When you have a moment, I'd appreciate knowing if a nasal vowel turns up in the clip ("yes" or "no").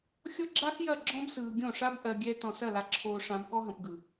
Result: yes